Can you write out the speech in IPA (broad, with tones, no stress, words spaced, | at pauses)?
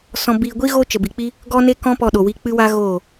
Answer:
sɔ̃˧biː˧ɡʷi˦ ɣoː˦t͡ʃə˨bi˨k͡pi˦ | ɡɔ˦ne˦ kɔ̃˦pɔ˧ ɗo˨wi˧ k͡pɨ˦wa˦ ɣoː˦˨